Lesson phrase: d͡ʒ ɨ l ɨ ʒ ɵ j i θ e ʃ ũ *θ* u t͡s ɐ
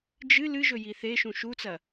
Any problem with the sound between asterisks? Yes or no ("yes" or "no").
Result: yes